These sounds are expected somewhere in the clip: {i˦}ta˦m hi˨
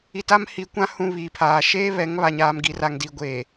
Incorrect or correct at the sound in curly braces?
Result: incorrect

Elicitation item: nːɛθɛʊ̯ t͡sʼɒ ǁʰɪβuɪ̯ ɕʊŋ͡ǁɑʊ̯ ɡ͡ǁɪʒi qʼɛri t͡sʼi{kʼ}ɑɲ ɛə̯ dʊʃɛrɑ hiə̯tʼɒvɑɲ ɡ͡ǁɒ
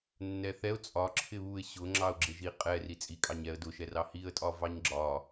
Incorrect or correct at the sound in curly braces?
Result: correct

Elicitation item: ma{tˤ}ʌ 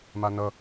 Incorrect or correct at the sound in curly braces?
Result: incorrect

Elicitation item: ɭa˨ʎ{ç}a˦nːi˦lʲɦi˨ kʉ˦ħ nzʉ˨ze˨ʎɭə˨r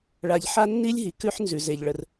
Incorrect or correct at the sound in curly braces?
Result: incorrect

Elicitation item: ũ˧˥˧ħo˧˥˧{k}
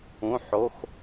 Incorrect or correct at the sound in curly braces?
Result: incorrect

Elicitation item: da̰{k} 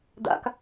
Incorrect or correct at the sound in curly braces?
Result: correct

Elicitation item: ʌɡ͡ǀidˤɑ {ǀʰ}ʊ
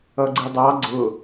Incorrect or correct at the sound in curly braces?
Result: incorrect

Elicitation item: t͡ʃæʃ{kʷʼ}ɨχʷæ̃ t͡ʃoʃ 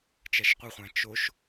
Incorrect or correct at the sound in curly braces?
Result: incorrect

